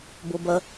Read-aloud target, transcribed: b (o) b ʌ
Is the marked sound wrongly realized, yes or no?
no